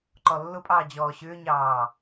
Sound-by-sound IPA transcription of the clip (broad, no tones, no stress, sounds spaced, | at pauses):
ǃ ɔ lː ʊ pʼ ɑː d͡ʑ ɔː ɕ ʏː ɲ ɑː